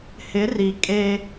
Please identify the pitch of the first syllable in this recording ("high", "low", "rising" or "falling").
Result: rising